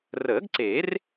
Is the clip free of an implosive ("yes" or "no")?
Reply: yes